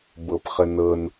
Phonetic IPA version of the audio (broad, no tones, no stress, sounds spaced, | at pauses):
b ɤ p χ ə n ɤ n